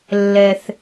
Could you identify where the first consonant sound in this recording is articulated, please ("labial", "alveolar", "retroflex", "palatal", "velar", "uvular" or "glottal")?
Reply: alveolar